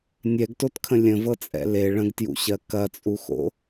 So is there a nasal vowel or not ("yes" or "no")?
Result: yes